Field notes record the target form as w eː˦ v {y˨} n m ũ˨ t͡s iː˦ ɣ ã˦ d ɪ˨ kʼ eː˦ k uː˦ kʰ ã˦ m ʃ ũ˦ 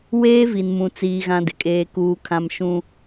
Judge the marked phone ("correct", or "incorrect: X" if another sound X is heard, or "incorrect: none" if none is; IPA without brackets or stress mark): incorrect: i˨